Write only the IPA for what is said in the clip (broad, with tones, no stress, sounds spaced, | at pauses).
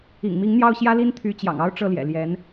ḭ˨˩ ŋ m i˧˥ ŋ n̪ j ɑ˥˩ ʊ̯ ɕ j ä˥ l i˥ n t̪ʰ y˧˥ t͡ɕ j ɑ̰˨˩ ŋ ɑ˥ ʊ̯ ʈ͡ʂ ɤ˥˩ l j ɛ̰˨˩ l j ɛ˧˥ n